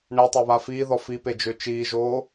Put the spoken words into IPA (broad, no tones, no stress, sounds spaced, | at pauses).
ɳ ɛ tˤ o β a f iː ð ɔ f i p e d͡ʒ ø t͡ʃ iː ʒ oː